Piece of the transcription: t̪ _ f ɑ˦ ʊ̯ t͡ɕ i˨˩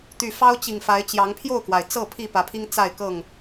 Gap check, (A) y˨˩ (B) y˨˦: A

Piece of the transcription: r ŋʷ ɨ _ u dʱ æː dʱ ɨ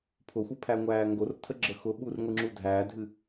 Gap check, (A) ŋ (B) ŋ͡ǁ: B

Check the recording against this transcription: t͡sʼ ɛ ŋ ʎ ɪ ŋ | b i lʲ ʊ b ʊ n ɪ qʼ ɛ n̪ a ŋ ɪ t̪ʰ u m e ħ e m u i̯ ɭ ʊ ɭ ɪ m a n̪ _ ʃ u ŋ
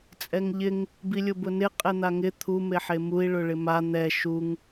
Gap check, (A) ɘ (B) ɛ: B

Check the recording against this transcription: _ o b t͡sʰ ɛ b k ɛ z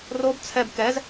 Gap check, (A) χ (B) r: B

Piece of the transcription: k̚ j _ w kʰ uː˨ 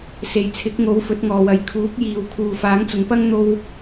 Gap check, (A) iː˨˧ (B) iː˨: B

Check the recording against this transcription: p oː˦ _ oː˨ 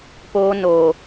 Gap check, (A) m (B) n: B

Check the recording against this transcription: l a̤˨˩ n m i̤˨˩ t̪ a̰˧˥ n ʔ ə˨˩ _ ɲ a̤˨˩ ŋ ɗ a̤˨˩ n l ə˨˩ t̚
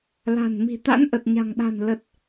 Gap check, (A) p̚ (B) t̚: B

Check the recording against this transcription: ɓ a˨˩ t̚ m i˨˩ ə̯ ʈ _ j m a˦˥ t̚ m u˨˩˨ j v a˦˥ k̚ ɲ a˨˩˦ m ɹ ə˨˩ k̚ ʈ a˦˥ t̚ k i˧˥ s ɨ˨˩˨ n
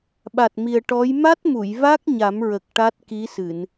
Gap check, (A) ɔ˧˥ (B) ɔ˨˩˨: A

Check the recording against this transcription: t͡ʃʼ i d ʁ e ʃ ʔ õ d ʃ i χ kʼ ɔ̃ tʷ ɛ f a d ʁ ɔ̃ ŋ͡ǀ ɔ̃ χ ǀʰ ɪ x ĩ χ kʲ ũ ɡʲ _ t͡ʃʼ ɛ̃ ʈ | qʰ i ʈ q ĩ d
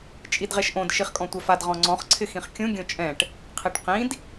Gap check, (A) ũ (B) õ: B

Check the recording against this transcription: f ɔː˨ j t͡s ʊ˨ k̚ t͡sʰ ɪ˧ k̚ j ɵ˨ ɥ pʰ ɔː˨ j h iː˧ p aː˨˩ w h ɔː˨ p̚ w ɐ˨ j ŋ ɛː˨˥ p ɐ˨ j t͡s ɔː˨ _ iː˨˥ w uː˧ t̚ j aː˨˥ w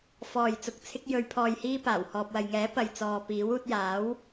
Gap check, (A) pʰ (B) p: B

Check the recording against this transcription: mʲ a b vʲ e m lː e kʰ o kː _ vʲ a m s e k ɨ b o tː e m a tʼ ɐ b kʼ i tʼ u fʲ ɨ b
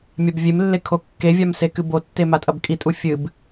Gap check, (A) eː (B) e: B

